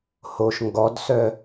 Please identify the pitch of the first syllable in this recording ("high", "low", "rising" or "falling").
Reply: low